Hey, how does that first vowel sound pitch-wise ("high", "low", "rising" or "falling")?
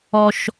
high